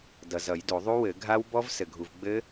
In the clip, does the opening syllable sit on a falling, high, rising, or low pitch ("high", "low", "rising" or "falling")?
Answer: low